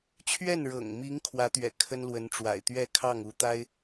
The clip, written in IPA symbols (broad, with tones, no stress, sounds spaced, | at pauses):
t͡ɕʰ ɥ ɛ˥˩ n ɻ ɤ̰˨˩ ŋ m i˧˥ ŋ kʰ w ä˧˥ t̪ ɥ ɛ̰˨˩ kʰ ə˥ n l w ə˧˥ n ʈ͡ʂ w a̰˨˩ ɪ̯ t̪ ɥ ɛ˥˧ kʰ ɑ˥˩ ŋ u˧˥ t̪ a˥ ɪ̯